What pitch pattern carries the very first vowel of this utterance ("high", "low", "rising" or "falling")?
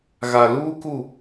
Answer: low